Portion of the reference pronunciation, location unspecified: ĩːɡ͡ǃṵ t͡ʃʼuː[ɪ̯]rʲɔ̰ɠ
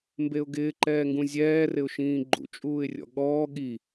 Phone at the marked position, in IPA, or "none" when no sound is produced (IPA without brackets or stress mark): ɪ̯